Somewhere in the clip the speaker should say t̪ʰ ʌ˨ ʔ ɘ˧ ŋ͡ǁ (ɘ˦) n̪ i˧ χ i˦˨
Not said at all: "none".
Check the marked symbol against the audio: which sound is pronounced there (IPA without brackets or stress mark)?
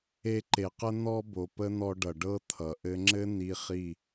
ɘ˦